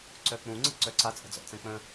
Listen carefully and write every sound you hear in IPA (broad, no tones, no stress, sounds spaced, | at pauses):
ǀ œ k͡p ũ ŋ͡ǀ ə̤ ǀ œ ǀ a t͡sʼ ə̤ d͡z ɔ̰ t͡s ɛ̃ k͡p ə̃